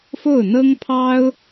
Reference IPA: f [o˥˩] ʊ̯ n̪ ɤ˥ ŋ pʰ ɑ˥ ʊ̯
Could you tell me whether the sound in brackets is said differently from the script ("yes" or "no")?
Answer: no